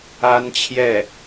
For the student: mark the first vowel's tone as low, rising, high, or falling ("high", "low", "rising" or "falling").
high